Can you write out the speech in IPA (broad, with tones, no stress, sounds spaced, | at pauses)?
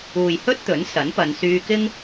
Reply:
uː˨ j h ɵ˥ t̚ t̪ ɵ˨˥ n s ɐ˨˥ n p ɐ˨˧ n s yː˧ k ɪ˥ ŋ